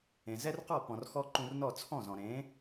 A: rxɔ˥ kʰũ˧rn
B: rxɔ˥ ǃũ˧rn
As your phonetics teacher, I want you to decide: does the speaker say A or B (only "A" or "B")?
B